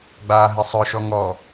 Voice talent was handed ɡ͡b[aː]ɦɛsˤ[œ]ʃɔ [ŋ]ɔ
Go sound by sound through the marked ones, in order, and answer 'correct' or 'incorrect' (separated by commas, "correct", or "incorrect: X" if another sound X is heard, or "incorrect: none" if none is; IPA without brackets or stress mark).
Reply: correct, correct, correct